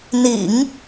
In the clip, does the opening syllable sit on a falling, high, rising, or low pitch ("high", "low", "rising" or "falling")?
low